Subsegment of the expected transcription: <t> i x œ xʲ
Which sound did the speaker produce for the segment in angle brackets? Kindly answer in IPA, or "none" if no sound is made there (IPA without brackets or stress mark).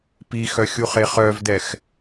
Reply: p